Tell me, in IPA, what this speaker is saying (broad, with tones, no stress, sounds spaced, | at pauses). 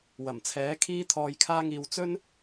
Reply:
w ɐ˨˩ m t͡sʰ ɛː˨˥ kʰ iː˧ t̪ʰ ɔː˨ j kʰ aː˧ ŋ iː˨ w t͡s ɵ˥ n